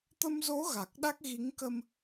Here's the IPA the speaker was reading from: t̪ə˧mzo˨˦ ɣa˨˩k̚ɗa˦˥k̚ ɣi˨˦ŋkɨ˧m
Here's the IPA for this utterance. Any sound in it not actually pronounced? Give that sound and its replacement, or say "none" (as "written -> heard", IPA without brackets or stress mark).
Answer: ɨ˧ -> ə˧